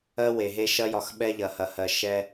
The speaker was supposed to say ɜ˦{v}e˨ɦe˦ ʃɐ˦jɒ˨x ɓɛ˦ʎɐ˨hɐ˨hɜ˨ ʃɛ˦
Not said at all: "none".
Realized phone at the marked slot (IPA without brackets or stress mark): w